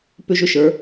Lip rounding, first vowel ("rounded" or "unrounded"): rounded